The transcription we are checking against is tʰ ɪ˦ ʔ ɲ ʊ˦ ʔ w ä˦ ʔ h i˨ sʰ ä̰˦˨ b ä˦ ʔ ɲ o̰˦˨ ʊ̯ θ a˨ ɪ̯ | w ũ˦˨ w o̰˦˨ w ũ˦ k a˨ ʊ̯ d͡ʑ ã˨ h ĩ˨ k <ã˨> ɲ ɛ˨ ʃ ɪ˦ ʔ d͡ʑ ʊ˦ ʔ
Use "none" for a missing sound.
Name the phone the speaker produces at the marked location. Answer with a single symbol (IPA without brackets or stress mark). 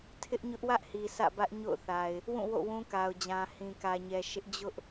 ä˨